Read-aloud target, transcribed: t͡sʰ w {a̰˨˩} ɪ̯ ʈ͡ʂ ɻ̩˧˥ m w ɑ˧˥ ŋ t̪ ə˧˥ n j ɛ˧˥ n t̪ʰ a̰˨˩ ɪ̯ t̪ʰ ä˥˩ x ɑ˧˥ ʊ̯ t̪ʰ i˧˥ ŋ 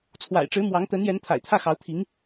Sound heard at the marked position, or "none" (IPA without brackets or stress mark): a̰˨˩